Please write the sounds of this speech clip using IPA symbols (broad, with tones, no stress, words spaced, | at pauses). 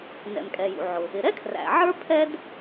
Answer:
nɛ̰˩mkʼɛ˩jṵ˩ʕʊ˩ | ɪ˩ɾɛ˥kʰræ̰˩ ʕə˞˥ pʰɛ˥d